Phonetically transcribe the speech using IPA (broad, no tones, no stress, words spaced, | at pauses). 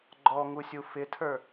ɡ͡ǃɔŋusʲu fɪtʰə˞